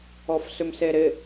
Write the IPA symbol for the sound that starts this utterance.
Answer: ɔ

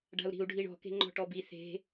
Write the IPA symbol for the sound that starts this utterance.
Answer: ɖ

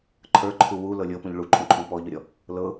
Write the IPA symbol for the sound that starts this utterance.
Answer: ǃʰ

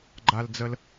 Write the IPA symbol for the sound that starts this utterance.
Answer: ɡ͡ǃ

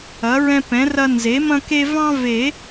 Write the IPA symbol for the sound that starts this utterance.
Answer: ɐ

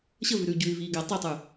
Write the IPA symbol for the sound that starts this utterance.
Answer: ɕ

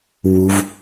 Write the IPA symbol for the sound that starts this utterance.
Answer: w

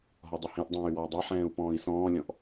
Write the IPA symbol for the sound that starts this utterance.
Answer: ɦ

